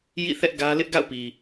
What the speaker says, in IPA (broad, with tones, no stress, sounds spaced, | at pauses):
j ḭ˦˨ θ ɛ˦ ʔ ɡ ä˦ l ɪ˦ ʔ ɡ a̰˦˨ ʊ̯ p i˨